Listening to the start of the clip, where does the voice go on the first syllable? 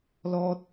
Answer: high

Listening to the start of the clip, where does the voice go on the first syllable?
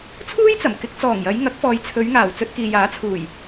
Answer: high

